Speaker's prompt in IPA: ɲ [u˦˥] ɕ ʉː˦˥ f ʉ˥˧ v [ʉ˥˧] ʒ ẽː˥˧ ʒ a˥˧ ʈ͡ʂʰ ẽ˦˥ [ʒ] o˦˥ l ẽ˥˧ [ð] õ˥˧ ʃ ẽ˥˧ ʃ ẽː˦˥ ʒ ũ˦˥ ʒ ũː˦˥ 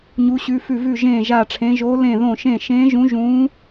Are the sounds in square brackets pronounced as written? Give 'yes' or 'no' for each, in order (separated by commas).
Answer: yes, yes, yes, yes